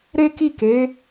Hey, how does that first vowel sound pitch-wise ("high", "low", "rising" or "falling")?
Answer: high